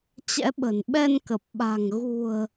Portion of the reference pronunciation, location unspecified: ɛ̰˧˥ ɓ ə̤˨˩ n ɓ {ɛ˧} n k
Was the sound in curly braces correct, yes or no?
yes